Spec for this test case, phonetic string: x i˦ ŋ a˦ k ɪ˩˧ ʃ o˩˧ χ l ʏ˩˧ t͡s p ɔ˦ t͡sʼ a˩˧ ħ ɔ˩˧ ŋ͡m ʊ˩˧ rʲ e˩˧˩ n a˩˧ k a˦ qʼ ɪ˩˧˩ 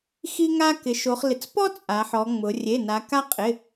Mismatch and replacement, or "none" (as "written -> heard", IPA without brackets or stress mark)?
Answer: ʏ˩˧ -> ɪ˩˧